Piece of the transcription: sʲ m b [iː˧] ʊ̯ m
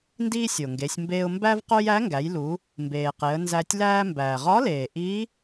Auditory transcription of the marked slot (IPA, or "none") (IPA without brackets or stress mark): eː˧